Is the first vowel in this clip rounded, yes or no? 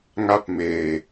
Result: no